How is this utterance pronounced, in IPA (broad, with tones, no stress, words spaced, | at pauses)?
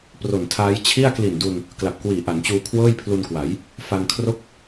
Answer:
pro˨˩ntʰaː˦˥j t͡ɕʰi˥˩a̯ kli˨˩ndu˧n | kla˨˩p̚kwiː˨˩ ʔa˩˦nt͡ɕuː˧ kʰwɤː˥˩jpʰlu˧nkwa˩˦j | fa˧nkʰro˥˩k̚